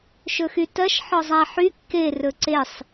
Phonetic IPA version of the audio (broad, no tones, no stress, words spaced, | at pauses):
ʃɵxytɜʃ ħɔzˤæħy kːe rɵǀesˤ